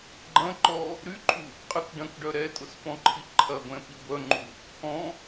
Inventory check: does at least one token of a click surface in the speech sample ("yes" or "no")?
yes